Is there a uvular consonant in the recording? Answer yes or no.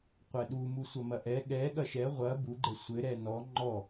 yes